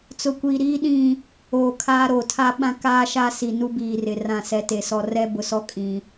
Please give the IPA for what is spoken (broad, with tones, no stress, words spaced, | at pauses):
t͡sʊ˨kʷiː˨ ɾiː˦ɗĩ˦˨ | oː˨kʰaː˦ɾo˨ tʰa˦ɓã˦kaː˦ʃa˦ si˨nu˦biː˨rɪ˨ rã˦˨sɛ˦te˨sɔ˦ rɛ˦bʊ˨sɔ˦ kʼĩ˦